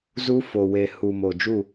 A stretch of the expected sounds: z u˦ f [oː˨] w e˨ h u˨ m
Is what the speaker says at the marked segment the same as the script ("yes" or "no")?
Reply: no